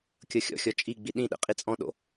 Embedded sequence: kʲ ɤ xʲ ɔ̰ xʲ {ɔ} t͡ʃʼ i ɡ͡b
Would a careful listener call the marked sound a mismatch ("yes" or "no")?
no